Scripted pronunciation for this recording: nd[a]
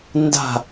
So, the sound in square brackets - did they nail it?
no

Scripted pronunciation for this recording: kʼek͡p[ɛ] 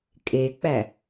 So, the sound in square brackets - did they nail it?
no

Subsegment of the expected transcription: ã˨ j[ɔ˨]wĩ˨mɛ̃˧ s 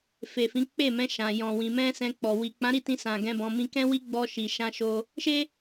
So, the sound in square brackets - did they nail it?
no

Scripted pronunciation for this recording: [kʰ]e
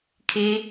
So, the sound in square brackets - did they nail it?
yes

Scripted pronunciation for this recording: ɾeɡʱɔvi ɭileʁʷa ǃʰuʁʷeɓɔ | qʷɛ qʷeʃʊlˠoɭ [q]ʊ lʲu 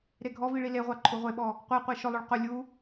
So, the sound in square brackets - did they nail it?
yes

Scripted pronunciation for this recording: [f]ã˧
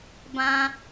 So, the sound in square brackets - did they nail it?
no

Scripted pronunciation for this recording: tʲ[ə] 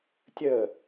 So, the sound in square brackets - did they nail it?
yes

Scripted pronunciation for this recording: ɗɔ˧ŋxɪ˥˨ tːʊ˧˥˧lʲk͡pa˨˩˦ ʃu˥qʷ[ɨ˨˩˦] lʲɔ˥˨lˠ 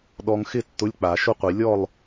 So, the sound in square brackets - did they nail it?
no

